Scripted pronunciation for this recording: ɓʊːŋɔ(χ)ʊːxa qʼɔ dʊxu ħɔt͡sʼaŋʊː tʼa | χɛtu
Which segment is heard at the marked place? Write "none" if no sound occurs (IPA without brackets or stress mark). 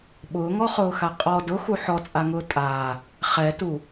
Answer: χ